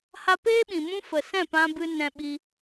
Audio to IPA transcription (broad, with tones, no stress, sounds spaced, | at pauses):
h a˧ p eː˦ ɓ ĩ˨ m ũ˦ f ə˨ s ɛ̃˦˨ p ã˧ b ɨ˧ n ɛ̃˧ ɓ i˧